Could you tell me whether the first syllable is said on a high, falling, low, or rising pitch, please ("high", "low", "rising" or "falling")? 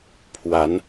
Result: rising